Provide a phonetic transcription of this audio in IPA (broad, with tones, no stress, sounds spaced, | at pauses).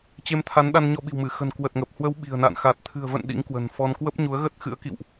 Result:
t͡ɕ e˧ m t̪ʰ a˨˦ n ɗ a˧ n ɲ ɔ˧ ɓ i̤˨˩ w m ɨ˧˩ x ə̤˨˩ n k w ə˨˩ t̚ ŋ ə˨˩ p̚ h w ə˨˦ w ɓ i̤˨˩ ə̯ n a̰˧˨ n x a˨˩ t̚ t̪ʰ ɨ̤˨˩ ə̯ v ə̰˧˨ n ɗ ḭ˧˥ ŋ k w ə̤˨˩ n f ɔ˧ n k w ə˦˥ p̚ ɲ u˨˦ ə̯ ɣ ə˦˥ t̚ x ɨ̰˧˥ ə̯ k ḭ˧˨ w ʔ